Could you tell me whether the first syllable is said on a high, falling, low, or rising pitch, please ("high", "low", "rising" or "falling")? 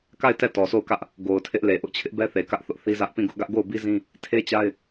falling